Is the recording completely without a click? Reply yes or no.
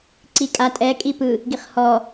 no